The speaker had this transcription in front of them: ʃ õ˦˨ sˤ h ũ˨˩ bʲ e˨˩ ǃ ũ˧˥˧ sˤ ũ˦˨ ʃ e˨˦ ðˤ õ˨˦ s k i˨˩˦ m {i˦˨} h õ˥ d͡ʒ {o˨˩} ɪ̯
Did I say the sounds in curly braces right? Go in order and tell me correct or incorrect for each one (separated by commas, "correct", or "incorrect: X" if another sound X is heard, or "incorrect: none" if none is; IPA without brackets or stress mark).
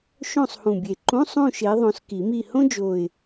correct, correct